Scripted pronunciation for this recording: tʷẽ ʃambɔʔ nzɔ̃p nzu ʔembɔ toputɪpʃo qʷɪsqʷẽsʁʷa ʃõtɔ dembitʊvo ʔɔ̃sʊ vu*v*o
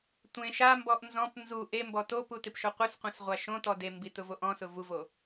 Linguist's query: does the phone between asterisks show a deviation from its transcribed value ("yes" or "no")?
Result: no